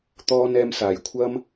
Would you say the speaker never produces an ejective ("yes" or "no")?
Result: yes